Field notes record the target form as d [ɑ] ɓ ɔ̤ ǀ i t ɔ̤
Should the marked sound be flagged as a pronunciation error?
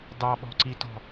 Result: no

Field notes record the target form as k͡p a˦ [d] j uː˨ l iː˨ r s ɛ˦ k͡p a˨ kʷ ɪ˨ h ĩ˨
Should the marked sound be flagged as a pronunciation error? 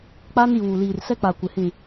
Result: yes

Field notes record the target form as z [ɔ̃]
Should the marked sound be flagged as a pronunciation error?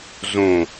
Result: yes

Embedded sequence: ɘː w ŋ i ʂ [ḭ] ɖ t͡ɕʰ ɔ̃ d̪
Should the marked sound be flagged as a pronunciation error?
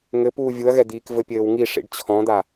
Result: no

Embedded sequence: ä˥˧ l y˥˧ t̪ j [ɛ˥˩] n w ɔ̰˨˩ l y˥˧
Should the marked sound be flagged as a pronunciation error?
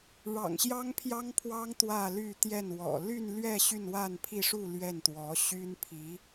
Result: no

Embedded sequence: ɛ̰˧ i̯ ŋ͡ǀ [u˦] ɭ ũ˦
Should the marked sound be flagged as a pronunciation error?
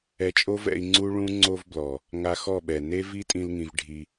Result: no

